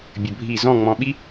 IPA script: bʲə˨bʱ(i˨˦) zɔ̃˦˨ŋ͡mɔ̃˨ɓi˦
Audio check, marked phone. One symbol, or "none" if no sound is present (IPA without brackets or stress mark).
i˦˨